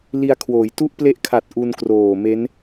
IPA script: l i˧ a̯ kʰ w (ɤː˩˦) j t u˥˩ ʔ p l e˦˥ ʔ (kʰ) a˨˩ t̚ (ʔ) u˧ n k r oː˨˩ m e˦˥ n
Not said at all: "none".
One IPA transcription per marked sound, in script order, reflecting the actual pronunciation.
oː˩˦, kʰ, ʔ

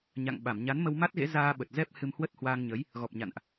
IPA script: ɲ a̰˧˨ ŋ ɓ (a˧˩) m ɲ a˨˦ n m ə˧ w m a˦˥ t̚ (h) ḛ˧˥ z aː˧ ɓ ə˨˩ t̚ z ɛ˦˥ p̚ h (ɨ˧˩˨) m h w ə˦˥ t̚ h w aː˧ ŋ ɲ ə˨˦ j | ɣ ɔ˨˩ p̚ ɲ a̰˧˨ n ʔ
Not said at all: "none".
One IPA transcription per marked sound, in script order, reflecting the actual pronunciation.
a˧˩, ɣ, ɨ˧

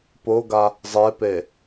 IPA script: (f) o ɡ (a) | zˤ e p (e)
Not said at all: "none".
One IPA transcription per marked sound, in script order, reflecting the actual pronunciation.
p, a, e

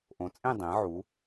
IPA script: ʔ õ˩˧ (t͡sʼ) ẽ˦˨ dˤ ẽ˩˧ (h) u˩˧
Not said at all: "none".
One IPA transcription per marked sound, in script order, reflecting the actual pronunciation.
t͡sʼ, ʕ

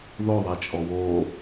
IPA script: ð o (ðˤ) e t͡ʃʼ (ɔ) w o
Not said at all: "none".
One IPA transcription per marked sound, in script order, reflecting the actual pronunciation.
ðˤ, ɔ

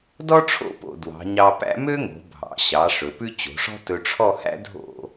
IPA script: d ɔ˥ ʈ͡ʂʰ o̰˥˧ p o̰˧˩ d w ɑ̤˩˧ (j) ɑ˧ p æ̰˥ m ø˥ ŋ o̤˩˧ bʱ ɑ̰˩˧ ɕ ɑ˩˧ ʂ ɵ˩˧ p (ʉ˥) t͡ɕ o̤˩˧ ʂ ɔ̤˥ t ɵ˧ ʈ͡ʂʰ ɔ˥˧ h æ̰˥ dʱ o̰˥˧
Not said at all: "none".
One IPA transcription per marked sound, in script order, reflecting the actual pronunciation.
ɲ, ʉ˥

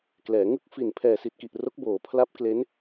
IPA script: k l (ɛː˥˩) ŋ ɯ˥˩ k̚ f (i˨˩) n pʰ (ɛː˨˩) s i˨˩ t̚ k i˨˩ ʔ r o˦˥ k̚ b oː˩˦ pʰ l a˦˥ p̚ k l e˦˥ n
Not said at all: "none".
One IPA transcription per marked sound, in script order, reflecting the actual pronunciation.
ɛː˩˦, i˨˩, ɛː˨˩

